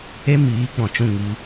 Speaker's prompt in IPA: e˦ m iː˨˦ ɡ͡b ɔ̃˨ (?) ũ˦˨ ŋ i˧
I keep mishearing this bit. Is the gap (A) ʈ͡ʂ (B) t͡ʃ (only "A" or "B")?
B